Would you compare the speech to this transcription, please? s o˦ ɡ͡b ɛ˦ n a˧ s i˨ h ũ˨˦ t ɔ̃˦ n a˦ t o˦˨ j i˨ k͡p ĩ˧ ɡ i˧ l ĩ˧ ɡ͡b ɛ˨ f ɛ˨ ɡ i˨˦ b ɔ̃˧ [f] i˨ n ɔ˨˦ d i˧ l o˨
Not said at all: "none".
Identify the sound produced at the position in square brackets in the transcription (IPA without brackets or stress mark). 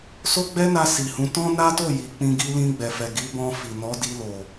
f